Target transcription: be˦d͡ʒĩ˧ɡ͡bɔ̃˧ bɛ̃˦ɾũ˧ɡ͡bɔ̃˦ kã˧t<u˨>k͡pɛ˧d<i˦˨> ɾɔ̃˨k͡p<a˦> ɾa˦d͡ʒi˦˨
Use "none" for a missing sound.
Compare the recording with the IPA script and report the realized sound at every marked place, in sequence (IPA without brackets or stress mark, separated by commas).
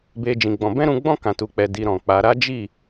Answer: u˧, i˧, a˨˦